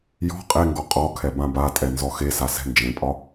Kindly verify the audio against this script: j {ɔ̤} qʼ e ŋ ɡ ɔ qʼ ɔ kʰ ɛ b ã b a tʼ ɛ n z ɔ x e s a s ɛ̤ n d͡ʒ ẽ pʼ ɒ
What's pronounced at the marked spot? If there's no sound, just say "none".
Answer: ɔ̤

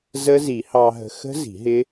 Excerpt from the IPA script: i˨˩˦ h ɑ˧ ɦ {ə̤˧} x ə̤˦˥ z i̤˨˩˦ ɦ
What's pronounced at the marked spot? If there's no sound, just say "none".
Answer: ə̤˧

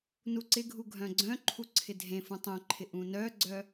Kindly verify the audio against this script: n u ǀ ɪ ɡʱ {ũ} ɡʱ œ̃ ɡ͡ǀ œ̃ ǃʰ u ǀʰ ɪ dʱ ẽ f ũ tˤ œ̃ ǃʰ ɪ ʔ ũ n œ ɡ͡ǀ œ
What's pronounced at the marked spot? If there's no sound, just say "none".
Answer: u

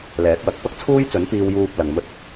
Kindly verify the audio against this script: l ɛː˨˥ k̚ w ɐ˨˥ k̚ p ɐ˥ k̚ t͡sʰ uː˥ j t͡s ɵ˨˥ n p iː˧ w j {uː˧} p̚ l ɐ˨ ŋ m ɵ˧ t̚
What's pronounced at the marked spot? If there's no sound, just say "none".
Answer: uː˧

